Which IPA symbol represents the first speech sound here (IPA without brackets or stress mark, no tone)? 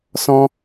s